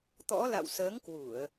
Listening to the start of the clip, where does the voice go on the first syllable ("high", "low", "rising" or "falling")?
rising